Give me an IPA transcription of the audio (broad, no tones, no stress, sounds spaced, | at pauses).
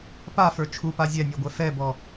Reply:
p a f ə˞ t͡ʃʰ u p a zʲ ɛ nʲ ɔ ɡʷ ɛ f ɛ b ɔ